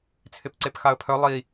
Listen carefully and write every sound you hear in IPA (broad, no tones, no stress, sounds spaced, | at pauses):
t͡sʰ ɪ p ǀ e p x a ə̯ pʰ œ lˠ i